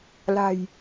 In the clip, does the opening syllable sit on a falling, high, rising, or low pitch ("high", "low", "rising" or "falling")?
low